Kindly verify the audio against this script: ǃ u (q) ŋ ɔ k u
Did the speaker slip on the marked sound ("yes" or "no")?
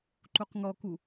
no